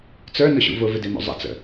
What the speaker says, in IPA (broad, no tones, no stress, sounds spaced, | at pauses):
t͡s ə˞ n ʊ ɕ ṵ v ʊ v ɪ d e m o̰ zˤ ə̰ t͡s ə̰